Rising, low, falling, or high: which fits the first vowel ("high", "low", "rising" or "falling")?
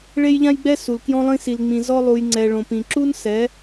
high